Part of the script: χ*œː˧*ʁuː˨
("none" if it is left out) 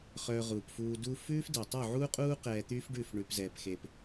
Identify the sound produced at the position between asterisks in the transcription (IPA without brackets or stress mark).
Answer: œː˧